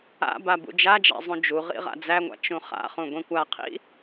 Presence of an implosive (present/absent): absent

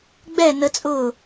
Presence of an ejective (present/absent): present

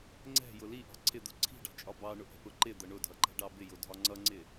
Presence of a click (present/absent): present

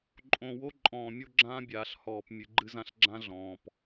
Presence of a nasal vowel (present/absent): present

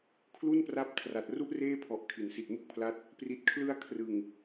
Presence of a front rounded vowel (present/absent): absent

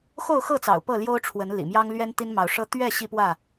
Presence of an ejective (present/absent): absent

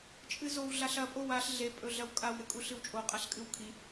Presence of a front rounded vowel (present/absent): absent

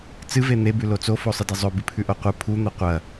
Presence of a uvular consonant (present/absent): present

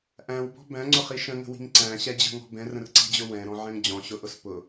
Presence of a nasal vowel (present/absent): present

